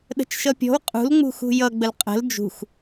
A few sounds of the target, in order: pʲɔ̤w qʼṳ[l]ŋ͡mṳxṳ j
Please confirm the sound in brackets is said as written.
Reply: yes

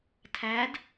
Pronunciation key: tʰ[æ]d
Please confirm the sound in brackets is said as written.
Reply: yes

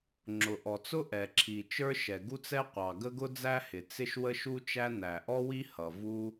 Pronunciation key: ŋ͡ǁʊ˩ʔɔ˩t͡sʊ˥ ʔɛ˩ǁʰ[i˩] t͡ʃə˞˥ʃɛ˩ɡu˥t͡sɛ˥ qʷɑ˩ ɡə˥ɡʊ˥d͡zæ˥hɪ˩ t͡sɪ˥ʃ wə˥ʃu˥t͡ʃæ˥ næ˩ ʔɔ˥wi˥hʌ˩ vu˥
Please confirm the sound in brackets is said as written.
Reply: yes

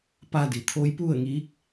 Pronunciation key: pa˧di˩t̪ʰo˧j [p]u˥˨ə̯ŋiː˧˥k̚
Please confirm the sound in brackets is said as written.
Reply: yes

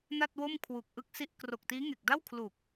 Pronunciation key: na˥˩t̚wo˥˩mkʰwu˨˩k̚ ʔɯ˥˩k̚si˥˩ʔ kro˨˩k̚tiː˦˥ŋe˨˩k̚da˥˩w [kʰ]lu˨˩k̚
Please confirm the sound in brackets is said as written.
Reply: yes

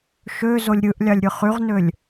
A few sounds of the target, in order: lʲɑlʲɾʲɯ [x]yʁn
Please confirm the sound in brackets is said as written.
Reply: no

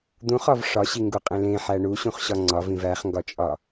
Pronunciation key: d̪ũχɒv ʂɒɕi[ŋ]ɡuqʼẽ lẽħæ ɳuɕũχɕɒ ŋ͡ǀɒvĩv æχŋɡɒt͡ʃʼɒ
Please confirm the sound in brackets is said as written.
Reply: yes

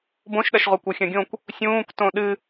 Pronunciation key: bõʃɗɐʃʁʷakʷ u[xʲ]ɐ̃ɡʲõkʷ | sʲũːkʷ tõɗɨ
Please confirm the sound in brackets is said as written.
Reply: yes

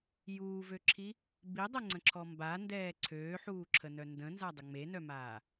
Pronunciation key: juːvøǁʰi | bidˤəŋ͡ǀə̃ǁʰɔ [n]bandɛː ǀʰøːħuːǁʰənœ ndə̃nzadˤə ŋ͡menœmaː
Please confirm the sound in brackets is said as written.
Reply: no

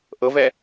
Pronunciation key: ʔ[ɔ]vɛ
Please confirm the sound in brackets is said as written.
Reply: no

